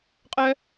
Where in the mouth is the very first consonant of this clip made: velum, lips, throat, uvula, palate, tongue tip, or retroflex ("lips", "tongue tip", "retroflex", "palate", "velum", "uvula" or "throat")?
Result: uvula